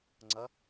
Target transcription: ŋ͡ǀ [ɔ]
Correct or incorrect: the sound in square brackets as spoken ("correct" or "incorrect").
incorrect